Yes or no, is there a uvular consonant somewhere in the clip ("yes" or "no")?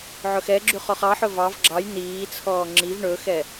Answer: yes